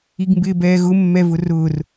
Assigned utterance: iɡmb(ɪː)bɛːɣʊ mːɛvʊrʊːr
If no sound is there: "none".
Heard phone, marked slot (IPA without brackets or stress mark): ɪː